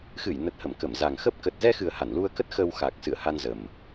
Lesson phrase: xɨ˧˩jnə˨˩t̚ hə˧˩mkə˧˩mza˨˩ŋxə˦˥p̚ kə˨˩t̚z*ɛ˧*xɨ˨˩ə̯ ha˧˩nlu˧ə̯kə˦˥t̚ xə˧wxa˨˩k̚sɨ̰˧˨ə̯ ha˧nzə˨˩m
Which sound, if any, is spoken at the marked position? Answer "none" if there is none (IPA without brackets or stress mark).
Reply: ɛ˧